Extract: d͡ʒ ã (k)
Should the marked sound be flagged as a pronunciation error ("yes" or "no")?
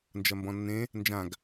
yes